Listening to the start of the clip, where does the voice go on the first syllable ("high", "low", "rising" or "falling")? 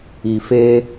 low